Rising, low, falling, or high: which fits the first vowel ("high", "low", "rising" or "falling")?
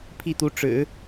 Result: falling